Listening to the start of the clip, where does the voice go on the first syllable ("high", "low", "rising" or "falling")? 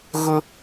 high